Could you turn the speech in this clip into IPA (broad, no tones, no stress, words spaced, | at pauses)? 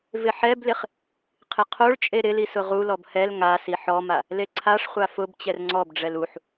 vɪħɛblɪχ | qʰɪqʰoɭt͡ʃʼe ɾɪli sʊʁulɔb hɛl ŋasi ħɔma | leǀʰaʂχʷa fʊb t͡ɕɛrŋ͡ǀɔbɖ͡ʐɛl uħ